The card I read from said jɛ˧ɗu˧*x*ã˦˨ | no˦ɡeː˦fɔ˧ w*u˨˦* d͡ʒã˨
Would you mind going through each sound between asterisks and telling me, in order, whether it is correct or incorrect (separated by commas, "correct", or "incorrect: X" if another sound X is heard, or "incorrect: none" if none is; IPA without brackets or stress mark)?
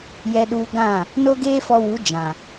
incorrect: ɡ, correct